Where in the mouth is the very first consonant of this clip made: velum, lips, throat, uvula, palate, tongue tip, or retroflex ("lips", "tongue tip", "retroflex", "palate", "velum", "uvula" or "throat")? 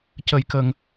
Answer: palate